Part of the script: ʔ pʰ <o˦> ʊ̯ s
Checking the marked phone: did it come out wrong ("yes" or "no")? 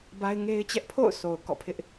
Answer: yes